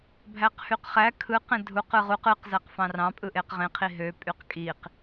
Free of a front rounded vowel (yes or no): no